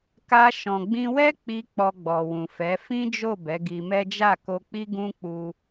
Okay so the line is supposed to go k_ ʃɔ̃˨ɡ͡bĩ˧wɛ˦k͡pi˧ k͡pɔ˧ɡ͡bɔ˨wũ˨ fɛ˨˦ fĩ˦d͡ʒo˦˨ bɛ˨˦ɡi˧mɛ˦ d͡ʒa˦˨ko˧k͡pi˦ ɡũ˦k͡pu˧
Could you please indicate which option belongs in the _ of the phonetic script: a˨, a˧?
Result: a˧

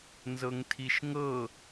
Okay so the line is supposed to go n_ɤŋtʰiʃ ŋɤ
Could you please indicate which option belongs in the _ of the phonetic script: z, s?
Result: z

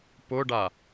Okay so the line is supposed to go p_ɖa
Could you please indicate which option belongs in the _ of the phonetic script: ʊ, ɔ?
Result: ʊ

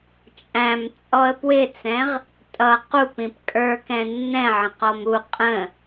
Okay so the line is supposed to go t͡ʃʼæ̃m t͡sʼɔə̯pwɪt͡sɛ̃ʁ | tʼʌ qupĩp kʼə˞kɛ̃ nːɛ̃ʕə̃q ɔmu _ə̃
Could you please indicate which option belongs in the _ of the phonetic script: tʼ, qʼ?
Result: qʼ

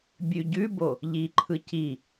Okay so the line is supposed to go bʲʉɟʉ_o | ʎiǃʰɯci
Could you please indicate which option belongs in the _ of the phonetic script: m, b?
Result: b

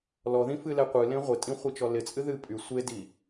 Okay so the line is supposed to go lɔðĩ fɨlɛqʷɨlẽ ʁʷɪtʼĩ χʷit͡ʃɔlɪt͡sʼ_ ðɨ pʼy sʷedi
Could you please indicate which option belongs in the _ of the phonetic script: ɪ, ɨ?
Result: ɨ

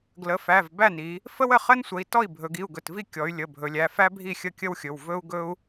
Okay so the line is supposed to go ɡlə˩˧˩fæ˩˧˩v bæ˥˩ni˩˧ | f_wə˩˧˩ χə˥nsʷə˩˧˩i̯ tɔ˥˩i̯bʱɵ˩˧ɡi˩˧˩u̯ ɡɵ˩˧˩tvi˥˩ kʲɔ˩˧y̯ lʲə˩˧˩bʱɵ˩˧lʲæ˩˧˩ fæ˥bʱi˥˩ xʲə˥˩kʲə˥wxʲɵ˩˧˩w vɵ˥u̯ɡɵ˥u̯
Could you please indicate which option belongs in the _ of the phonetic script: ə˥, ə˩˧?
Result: ə˥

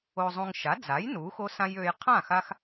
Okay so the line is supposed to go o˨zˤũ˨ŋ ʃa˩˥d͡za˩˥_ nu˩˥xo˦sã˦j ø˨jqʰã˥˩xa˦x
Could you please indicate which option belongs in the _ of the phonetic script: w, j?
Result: j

